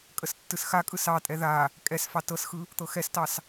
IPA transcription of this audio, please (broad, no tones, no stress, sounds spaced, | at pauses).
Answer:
kʼ ə s tː ɯ s x a kʼ ɯ s ɑ tʼ ɛ ð a | kʼ ɛ s f ɑ t ɤ s x ɯ | t̪ ɤ x ɛ s t ɑ s